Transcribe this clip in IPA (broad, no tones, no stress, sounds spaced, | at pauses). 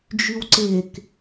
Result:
d͡ʒ y w ǀ e k